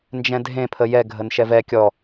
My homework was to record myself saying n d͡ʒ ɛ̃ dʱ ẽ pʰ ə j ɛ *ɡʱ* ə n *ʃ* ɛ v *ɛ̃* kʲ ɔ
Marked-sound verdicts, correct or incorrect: correct, correct, incorrect: ɛ

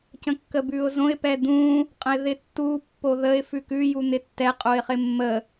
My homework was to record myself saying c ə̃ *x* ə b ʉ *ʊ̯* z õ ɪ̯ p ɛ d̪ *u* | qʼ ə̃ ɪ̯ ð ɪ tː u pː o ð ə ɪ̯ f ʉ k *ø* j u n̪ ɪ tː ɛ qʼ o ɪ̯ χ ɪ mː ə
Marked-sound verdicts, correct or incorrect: incorrect: kː, correct, incorrect: ũ, incorrect: ʉ

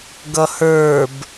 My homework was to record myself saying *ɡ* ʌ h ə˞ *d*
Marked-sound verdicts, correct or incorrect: correct, incorrect: b

